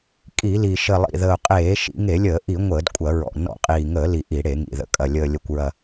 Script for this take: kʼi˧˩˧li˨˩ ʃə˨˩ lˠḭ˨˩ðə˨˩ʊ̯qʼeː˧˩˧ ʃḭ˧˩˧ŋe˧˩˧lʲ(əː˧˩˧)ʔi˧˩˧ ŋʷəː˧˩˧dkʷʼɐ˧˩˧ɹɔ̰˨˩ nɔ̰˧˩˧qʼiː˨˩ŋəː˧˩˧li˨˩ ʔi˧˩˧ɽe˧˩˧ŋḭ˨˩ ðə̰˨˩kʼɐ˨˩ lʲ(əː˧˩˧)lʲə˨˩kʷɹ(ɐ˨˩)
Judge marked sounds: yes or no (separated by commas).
yes, no, yes